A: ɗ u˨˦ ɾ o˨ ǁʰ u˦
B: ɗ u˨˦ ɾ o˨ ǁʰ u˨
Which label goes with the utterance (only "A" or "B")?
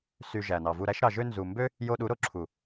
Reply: B